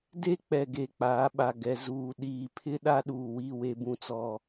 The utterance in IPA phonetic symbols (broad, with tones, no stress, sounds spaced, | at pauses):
d e˦ k͡p ɛ˨ ɡ e˨ k͡p aː˨˦ ɓ a˨ ɡ ɛ˨ z uː˨ ɗ iː˨ pʰ ɪ˦ ɗ a˦ ɗ uː˨ w i˦˨ w e˦ b ũ˦ t͡s ɔ˦